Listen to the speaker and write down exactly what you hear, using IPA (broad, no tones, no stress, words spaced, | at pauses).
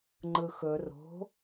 ŋ͡ǃɯxɵ ro̤